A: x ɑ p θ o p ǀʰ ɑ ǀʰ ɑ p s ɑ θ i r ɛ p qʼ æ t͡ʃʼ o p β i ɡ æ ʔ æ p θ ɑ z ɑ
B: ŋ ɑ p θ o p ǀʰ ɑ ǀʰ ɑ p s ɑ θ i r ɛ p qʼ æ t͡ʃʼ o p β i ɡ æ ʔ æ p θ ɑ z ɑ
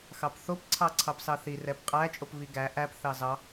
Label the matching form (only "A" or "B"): A